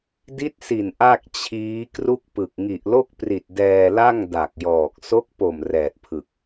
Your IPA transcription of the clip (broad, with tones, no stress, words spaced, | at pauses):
di˦˥t̚si˨˩n ʔa˥˩k̚t͡ɕʰiː˦˥ kru˥˩k̚pɯ˨˩k̚ ŋi˨˩ʔlo˥˩k̚pri˨˩t̚ dɛː˧la˥˩ŋ da˨˩k̚jɔː˨˩k̚ so˦˥k̚po˨˩m rɛː˨˩t̚pʰɯ˨˩k̚